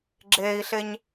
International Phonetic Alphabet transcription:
ɡ͡ǁ eː i̯ ɬ e ɲ

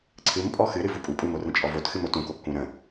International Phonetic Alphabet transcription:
ǀʰ ɨ m pʼ ɔ x ɨ ɾ ɨ v u pʼ u pʼ u m o r ə̃ t͡ʃʼ ɔ v o t x ɨ m o t ũ k o kː ũ ɾ ə̃

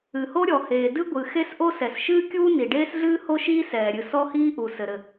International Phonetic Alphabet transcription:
ɨ˩ h o˥ ɾʲ ɔ˩ h eː˩ d ɨ˥ ɡʷ ɨ˩ x e˥ s ʔ o˥ s ɛ˩ s ʃ ɨː˥ kʲ uː˥ n i˩ ɖ eː˥ s ɮ ɨː˥ h o˥ ʃ iː˥ s ɛː˩ ɾʲ ɨ˩ s ɔ˥ h iː˥ ʔ u˩ s ɘ˩ ɾ ɘ˩

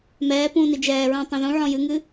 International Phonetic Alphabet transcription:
m ɛː p ũː n i d͡ʒ ɛː ɹ ũː tˤ ẽ ð ũ ʕ ɔ̃ j ɨ ŋ ɨ

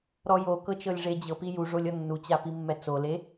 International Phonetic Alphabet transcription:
ɾ ɔ j o k ɤ t͡ʃ ɤ lʲ ʐ e d͡ʑ ɤ p i j u ʐ o lʲ ɔ nː u t͡ɕ a p i mː ɛ t͡s o l e

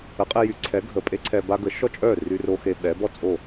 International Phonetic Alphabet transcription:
ə˩˥ qʼ e˧ j y˩˥ ǀʰ ɛ˩˥ ɡʱ ə˩ pʼ e˥ ǀʰ ɛ˧ b a˥ ɡ ə˩˥ ʃ ɔ˥ t͡ʃʼ œ˥˩ r y˧ r o˧ x e˧ ɓ ɛ˩˥ b ɔ˥˩ t͡sʼ o˥˩

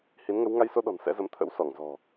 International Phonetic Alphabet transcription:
h i˨˦ n ŋ ə˨˦ w ŋ a˧ j s o˧ ɗ ɔ̤˨˩ n s ɛ̰˧˥ z ə˨˦ m t̪ʰ ə̰˧˥ w s ɔ˧˩ ŋ z ɔ̤˨˩

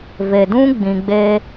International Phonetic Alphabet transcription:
v e˨ d ũ˦ ɡ͡b ĩ˧ ɡ͡b e˦

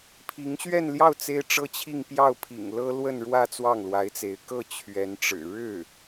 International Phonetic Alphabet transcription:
pʰ i˧˥ ŋ ɕ ɥ ɛ˥˧ n l j ɑ˥˩ ʊ̯ t͡s e˥ ɪ̯ ʈ͡ʂ ɤ˥ t͡ɕʰ i˥˧ ŋ p j ɑ˥˩ ʊ̯ pʰ ḭ˨˩ ŋ l ɤ˥ l w ə˥˧ n ɻ w ä˥˧ t͡s w ɑ˥˩ ŋ l w a˧˥ ɪ̯ t͡s e˧˥ ɪ̯ k ɤ˥˩ t͡ɕʰ ɥ ɛ˧˥ n ʈ͡ʂ ɻ̩˨˩ ɻ ɻ̩˥˩

